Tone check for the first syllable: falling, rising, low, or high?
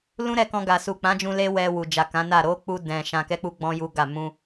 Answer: high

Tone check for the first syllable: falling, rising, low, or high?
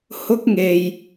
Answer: high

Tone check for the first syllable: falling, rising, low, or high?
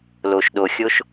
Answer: low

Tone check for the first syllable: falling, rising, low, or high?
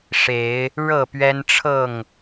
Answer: rising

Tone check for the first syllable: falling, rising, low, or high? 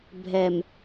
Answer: low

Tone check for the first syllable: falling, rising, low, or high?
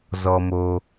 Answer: low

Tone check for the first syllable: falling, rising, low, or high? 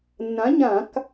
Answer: rising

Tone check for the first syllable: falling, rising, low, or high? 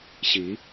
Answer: rising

